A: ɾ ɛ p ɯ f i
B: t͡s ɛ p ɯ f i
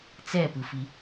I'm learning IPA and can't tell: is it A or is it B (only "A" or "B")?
B